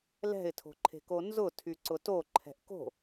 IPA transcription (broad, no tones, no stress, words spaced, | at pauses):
lɛ̤ɪ̯tʰo̤ǃʰe̤ko nzʊ tʰyǀʊto ǃʰɛ̤ʔko̤